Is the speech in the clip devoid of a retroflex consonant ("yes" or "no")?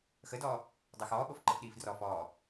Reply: yes